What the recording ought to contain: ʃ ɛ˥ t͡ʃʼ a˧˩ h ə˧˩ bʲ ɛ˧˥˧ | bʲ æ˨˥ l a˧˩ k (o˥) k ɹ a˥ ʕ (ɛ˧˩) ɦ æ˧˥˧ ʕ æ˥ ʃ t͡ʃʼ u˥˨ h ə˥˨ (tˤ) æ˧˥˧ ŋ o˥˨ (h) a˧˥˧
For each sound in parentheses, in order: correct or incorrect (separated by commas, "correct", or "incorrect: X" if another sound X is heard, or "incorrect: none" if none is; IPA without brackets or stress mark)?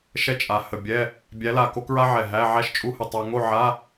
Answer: correct, correct, correct, incorrect: ʕ